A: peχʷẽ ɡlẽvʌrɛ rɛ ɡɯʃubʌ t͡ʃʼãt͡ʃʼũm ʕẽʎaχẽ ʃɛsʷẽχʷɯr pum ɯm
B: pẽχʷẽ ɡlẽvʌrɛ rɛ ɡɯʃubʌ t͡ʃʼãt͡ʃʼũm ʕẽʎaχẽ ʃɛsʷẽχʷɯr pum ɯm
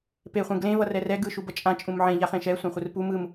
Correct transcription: A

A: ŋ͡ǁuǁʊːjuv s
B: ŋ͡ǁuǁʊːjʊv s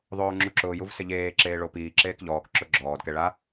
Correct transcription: A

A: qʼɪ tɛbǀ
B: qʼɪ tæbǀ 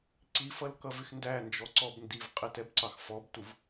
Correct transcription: A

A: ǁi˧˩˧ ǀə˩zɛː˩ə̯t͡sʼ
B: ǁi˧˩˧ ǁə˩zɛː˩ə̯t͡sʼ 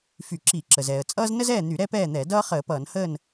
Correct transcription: B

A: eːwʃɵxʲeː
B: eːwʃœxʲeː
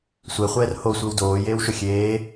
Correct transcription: A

